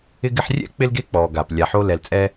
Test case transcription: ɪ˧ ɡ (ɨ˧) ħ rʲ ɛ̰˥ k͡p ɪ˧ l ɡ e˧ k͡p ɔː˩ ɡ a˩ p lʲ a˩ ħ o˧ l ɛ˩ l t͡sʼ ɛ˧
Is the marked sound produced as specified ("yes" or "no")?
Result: no